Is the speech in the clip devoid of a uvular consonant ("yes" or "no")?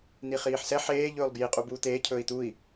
no